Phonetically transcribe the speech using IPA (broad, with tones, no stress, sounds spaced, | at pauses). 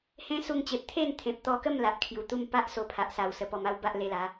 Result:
h ẽ˦ s u˧ ŋ t͡ɕ e˨ p̚ t̪ʰ e˥˧ n t̪ʰ ẽ˨ p̚ t̪ ɔ˧ k ə˥˧ m l a˨ ʔ kʰ j u˨˩ t̪ u˥˧ m p a˦ ʔ s o˧ pʰ a˨ ʔ s a˨˩ w s ə˨˩ p ɔ˨˩ m a˥˧ w b a˦ ʔ l e˧ l a˨˦